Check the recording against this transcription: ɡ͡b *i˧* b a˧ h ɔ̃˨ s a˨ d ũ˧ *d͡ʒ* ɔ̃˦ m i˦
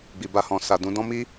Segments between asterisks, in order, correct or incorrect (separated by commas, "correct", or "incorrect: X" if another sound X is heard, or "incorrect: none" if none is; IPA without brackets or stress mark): incorrect: i˨, incorrect: d